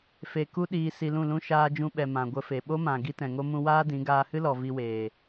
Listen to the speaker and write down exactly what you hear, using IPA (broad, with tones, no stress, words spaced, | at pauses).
fe˧ ku˦ɗiː˧ si˧lũ˦˨lũ˦ ʃaː˧d͡ʒũ˧ɓɛ˨ mã˨ɡʷə˧fe˨ ɓo˦mã˨ ɡi˦tɛ̃˨ŋo˦mũ˦ waː˦dĩ˨˦ ɡaː˧hɨ˦lɔ˨ vi˧weː˨